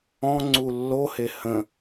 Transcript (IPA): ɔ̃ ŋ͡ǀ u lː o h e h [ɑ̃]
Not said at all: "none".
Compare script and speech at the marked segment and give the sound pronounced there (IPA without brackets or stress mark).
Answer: ə̃